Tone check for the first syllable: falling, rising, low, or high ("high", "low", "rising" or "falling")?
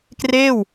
falling